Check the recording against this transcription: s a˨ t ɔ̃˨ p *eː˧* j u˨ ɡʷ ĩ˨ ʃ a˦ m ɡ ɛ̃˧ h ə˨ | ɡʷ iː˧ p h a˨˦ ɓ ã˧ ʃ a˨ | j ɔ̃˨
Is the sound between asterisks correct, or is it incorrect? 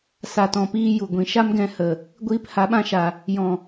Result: incorrect: iː˧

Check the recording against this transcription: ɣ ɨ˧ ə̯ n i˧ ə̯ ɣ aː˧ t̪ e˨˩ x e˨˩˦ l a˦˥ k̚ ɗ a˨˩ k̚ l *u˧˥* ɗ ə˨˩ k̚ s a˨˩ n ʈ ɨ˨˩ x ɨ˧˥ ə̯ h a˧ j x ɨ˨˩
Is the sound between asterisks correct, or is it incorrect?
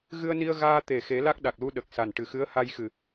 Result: incorrect: u˧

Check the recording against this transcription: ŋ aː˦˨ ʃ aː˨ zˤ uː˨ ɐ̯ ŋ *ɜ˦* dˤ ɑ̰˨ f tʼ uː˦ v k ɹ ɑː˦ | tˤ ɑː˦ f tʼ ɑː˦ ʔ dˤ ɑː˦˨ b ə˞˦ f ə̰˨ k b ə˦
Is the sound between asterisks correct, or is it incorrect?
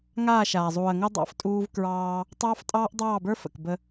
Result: correct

